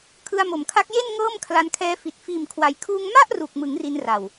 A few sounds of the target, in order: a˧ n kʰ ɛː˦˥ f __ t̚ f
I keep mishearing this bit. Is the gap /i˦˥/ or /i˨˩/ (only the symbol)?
i˨˩